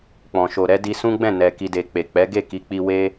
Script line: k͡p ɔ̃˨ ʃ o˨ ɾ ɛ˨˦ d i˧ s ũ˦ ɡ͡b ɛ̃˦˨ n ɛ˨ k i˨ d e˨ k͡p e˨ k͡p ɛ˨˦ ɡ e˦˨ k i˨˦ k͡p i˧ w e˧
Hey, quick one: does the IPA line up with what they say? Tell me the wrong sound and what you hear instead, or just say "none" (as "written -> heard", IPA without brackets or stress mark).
none